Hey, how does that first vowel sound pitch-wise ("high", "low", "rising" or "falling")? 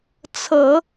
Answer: low